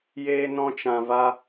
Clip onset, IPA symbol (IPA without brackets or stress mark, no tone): j